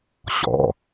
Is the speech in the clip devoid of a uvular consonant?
yes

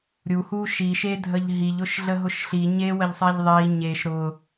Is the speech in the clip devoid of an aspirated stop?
yes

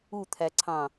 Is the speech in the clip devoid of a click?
no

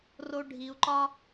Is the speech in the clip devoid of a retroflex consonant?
no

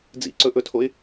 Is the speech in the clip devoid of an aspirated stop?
no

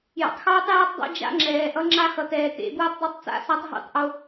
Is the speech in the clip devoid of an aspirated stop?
yes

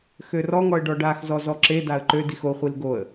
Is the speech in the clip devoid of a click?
no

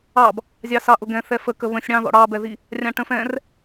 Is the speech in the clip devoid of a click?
yes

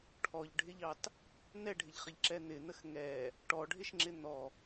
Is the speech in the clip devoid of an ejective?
yes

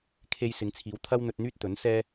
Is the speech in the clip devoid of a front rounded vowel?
no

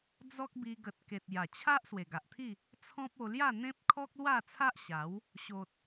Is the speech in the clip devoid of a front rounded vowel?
yes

